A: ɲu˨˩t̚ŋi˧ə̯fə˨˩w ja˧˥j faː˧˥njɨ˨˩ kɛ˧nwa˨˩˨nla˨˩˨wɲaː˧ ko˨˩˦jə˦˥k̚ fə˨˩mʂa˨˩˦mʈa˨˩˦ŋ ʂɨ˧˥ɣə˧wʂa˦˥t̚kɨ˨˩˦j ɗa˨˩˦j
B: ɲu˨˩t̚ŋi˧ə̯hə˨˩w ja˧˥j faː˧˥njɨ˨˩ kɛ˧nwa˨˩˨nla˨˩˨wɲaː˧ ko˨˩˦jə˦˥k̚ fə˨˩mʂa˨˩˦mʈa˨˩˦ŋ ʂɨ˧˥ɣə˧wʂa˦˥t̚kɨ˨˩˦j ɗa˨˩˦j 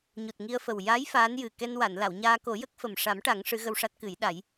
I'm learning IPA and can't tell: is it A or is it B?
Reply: A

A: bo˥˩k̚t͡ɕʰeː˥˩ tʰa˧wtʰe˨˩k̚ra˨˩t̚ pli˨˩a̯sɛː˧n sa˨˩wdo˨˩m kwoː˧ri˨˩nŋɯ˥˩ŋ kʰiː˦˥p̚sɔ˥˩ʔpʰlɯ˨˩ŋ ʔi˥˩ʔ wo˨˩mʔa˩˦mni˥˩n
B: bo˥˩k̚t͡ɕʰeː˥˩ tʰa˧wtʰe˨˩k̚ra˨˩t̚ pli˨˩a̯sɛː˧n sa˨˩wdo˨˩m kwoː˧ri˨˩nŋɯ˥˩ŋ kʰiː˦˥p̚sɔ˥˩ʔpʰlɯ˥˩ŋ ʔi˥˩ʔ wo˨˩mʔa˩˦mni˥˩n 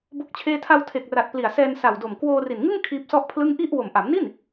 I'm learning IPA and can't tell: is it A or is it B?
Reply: B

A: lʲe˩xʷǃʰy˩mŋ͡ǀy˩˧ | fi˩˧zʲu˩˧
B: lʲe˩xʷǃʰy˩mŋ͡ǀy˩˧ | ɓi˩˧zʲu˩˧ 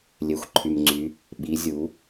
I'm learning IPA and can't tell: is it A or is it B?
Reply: B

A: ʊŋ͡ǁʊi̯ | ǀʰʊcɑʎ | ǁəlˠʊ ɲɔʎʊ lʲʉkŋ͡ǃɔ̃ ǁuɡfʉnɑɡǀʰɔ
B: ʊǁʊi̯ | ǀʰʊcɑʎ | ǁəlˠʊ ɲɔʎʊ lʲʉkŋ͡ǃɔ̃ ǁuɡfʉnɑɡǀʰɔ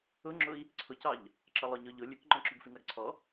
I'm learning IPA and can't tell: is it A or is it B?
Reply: A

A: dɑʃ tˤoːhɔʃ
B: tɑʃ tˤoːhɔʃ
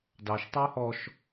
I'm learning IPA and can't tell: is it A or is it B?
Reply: A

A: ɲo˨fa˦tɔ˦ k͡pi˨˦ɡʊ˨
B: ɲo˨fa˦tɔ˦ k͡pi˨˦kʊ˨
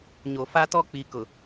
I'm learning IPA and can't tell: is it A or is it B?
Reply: B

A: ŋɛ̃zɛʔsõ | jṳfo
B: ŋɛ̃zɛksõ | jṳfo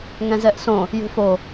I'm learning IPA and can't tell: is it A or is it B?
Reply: A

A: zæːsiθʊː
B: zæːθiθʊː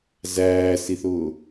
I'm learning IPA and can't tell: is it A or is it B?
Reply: A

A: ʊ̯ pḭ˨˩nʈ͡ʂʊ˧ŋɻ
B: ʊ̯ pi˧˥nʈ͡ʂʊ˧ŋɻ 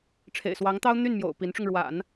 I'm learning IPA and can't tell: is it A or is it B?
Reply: B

